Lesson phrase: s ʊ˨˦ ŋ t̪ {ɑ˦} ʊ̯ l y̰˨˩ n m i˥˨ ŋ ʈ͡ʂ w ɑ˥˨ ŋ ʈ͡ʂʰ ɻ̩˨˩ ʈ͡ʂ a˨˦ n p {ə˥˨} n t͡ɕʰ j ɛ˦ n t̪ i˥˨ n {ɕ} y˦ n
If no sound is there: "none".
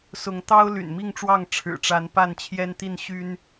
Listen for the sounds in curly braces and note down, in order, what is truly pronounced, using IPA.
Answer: ɑ˦, a˥˨, ɕ

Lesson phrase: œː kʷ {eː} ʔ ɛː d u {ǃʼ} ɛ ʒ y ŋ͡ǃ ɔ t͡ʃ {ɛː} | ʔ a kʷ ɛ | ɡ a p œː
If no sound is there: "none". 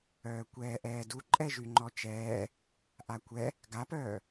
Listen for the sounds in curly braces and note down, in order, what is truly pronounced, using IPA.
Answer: ɛː, ǃʼ, ɛː

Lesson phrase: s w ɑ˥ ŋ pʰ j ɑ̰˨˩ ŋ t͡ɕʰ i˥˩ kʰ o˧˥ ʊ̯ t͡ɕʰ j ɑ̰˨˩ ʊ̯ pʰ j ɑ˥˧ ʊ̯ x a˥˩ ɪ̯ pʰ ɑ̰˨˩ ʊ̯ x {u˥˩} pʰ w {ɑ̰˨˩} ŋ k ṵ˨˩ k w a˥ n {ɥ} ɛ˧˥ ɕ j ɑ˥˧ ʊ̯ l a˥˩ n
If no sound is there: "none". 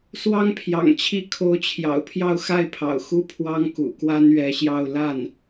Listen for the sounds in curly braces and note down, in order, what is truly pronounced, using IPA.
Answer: u˥, ɑ˥, ɥ

